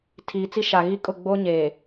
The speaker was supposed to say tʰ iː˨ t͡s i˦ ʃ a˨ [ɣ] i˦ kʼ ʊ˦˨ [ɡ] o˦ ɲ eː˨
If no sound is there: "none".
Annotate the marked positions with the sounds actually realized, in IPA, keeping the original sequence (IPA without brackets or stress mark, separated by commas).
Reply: ɣ, ɡ͡b